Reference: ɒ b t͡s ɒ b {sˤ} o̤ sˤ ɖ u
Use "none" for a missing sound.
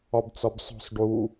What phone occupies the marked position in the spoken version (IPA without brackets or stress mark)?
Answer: sˤ